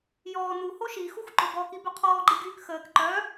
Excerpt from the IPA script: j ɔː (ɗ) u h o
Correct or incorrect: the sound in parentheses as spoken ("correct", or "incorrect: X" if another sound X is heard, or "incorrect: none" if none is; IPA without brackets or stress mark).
incorrect: n̪